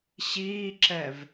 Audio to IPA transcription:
ɕiːǁɛv

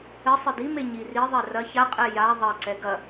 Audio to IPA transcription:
ɘsˤɨ dime ɲiri ðˤɛrɐ çaqʼɛ ja ðˤɐǀɛ ɡɐ

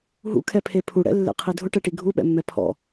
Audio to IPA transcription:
ɦṵkʰɛpʰe pʰuɽɛ̰lːḛqʰi dʱʊʈɛʈi ɡʱuɓɛ̰mːɛ pʰɔ̰

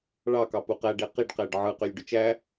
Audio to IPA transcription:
ɭɑkɑ puqæɖe qiɖqæɖ ʕɯqølʲ ɖyt͡ʃæ

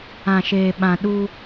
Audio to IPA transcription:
ã˨ʃeː˨ ɓã˨ɗuː˦

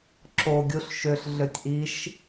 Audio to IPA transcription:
ǁo ɡʲuɬʃøɬ ɮøtʲʔiʃ

